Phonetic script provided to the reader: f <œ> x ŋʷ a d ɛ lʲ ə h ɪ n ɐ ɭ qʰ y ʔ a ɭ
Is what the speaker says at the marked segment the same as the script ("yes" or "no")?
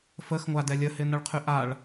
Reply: no